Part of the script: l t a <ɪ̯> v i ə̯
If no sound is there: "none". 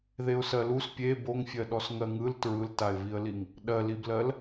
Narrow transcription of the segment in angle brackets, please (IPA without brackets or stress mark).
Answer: ɪ̯